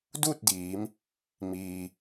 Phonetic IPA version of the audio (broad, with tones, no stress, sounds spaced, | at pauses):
d uː˥˨ t̚ d iː˩˧ m | m iː˩